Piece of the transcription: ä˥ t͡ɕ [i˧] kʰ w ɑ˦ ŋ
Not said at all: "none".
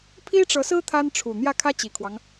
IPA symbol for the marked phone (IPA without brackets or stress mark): i˨˩